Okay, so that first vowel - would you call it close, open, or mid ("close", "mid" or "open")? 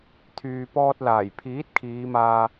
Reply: close